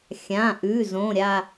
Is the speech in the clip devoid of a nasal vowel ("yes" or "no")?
no